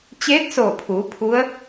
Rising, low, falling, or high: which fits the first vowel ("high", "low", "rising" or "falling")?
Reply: rising